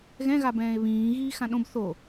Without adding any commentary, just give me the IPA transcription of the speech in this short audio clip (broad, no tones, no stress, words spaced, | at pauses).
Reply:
ɣɛ̃ɣabɛ̃ːe̯ βĩː ɣiːxãɗõb θo